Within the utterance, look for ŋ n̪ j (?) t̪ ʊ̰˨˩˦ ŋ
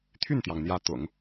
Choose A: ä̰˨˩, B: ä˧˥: B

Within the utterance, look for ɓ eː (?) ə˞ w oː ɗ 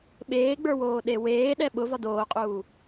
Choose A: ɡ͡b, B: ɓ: A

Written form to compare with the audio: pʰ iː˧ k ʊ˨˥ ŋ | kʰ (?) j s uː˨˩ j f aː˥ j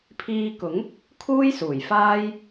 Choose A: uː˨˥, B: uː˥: B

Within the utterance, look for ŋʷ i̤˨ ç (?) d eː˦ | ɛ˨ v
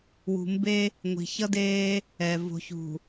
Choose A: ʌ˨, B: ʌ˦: B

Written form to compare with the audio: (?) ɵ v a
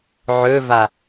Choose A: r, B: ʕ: B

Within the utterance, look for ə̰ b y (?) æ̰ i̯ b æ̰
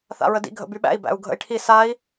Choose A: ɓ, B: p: A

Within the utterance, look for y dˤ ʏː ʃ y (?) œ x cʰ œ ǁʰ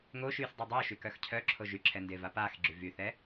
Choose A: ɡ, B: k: B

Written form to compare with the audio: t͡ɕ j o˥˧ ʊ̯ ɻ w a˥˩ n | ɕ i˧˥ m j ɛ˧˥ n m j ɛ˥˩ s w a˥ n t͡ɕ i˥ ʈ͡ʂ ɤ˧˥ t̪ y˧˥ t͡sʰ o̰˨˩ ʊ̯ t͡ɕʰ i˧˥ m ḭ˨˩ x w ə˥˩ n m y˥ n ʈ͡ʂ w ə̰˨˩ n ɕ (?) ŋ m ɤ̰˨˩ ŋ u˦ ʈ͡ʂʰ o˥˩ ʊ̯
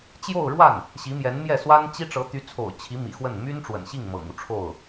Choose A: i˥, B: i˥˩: B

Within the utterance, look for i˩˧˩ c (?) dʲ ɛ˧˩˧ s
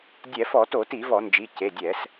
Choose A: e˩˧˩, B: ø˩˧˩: A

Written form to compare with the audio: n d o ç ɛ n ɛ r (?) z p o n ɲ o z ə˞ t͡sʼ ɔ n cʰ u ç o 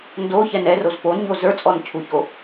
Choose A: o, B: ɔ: A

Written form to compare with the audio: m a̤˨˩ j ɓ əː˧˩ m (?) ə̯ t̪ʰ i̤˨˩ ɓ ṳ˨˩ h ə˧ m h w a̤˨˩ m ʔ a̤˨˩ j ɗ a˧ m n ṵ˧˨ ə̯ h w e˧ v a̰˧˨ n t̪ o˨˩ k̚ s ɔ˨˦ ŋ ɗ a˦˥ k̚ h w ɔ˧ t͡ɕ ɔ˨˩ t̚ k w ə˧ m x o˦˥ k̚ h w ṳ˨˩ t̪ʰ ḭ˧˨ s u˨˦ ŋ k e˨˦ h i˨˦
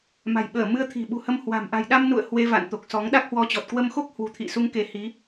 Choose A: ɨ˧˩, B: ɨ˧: B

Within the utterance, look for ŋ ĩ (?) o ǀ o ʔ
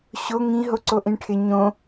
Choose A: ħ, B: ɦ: B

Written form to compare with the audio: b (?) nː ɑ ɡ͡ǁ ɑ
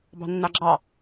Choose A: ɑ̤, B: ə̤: A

